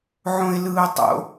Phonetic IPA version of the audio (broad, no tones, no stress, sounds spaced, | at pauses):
ʕ õ ɪ̯ l ɯː ʊ̯ tˤ o̰